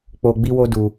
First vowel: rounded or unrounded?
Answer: rounded